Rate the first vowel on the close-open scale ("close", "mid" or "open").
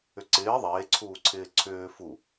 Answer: close